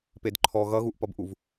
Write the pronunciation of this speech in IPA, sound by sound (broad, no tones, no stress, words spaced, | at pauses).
pedǃʰɔ ɣʌɣuʔpʌbʔuv